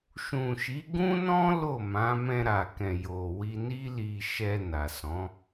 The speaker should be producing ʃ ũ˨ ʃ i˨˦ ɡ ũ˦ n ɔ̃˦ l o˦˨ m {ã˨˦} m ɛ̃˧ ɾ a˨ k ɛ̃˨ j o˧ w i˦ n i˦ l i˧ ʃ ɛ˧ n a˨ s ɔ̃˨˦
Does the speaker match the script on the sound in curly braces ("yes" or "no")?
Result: yes